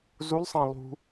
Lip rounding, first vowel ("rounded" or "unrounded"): rounded